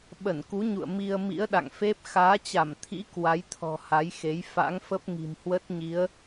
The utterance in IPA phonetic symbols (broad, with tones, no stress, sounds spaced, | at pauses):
ɓ ə˧˩ n k u˨˦ ɲ ṵ˧˨ ə̯ m i˧ ə̯ m ḭ˧˥ ə̯ ɗ a̰˧˨ ŋ f e˦˥ p̚ x aː˨˦ t͡ɕ a˧˩ m t̪ʰ ḭ˧˥ k w a˨˦ j t̪ʰ ɔ̤˨˩ h a˨˦ j x e˨˦ j f a̰˧˥ ŋ f ə˦˥ p̚ ŋ i̤˨˩ m h w ə˦˥ t̚ ɲ i˨˦ ə̯